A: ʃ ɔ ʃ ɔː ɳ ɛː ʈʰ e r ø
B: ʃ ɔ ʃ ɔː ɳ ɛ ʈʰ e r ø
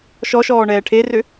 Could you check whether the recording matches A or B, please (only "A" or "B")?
A